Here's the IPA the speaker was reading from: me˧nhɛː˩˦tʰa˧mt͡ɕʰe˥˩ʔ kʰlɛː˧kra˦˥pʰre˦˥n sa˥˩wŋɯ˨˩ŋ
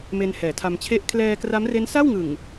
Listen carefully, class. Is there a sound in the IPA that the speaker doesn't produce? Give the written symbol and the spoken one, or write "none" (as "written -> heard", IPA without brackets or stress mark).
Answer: pʰ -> m